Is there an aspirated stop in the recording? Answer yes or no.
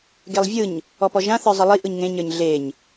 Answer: no